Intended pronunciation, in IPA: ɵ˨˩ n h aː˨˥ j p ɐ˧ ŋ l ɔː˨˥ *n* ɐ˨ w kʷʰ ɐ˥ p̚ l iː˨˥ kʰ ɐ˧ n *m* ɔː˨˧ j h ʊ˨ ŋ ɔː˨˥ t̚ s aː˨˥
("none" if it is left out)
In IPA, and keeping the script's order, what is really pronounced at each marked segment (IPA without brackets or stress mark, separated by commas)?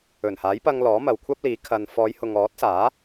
m, f